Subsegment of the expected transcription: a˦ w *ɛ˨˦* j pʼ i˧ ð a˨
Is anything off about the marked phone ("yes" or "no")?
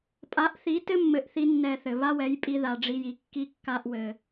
no